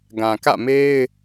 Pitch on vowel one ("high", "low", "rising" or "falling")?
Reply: low